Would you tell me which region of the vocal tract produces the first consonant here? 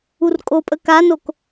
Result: tongue tip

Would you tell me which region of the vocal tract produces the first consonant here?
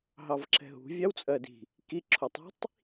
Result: throat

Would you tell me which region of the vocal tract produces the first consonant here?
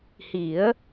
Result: throat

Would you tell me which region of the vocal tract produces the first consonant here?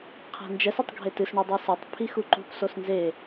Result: uvula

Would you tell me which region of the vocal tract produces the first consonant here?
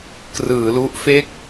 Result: velum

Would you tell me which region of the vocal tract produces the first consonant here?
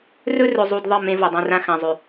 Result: tongue tip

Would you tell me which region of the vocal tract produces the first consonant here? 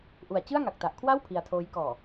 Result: throat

